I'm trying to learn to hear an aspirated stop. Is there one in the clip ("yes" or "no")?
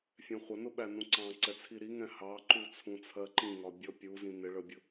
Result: yes